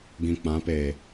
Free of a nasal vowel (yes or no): no